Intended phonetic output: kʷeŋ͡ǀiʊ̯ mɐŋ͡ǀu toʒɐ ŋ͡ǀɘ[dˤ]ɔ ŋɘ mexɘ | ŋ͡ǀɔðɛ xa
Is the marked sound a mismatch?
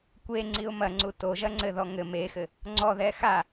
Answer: yes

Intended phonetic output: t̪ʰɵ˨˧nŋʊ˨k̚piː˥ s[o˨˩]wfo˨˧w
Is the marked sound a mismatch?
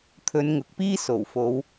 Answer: no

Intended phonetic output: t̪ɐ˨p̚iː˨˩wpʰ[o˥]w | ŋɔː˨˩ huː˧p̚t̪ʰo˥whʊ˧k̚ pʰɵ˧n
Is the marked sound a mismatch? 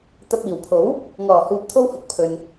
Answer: yes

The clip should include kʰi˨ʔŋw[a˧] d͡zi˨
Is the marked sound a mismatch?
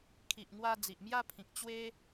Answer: no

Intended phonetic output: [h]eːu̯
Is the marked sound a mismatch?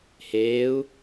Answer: no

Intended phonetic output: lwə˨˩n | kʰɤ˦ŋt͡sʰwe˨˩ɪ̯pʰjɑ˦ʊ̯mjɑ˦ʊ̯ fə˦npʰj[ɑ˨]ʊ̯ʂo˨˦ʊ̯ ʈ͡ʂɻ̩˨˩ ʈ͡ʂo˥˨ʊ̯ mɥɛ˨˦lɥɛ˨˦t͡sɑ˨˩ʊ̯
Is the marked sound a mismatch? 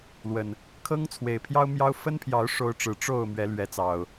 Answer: yes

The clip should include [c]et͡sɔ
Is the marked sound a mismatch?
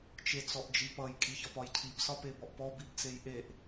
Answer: yes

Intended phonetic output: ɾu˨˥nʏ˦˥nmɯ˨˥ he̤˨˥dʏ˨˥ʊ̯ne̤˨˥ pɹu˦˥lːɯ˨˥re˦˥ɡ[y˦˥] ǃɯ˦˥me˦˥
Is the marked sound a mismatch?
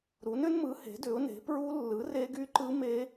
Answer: no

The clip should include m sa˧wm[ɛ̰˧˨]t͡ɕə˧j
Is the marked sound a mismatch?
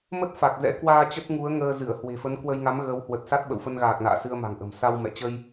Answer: no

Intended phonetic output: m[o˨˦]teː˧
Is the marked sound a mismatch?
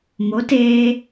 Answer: no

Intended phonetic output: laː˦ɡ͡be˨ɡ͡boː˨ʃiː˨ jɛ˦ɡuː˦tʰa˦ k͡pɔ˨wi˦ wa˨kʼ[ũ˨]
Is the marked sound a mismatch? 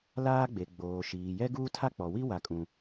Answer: no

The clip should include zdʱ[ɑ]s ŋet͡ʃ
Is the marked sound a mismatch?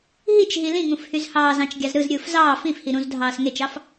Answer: yes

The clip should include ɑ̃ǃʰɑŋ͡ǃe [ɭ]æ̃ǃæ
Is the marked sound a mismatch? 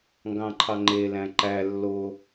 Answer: yes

